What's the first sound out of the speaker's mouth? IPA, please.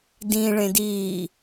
d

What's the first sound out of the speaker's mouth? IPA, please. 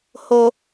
h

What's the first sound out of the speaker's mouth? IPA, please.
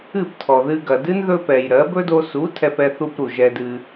ɨ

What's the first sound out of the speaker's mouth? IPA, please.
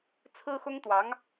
t͡sʰ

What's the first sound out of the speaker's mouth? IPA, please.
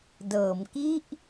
d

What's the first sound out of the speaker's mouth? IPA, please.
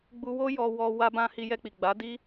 ɡ͡b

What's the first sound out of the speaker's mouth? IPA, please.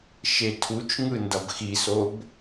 ʃ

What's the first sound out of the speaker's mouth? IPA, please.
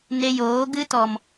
n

